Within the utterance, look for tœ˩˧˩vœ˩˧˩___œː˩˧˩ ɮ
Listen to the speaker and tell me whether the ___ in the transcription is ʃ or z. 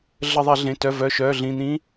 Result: ʃ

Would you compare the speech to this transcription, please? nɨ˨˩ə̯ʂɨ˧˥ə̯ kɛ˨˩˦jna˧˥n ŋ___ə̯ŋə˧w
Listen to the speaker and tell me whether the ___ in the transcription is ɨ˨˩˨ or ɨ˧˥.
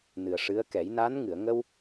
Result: ɨ˨˩˨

